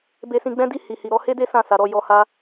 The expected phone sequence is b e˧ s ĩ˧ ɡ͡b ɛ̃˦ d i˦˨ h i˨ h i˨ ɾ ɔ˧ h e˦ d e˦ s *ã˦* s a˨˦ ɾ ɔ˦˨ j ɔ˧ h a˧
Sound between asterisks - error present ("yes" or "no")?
yes